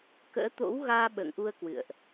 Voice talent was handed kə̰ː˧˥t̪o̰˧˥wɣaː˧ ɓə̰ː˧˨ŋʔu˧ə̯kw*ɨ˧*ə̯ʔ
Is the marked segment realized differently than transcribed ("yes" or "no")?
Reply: yes